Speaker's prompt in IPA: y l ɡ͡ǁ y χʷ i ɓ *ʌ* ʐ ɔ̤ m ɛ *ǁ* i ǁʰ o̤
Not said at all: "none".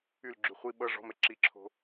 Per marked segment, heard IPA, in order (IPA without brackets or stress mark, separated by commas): ʌ, ǁ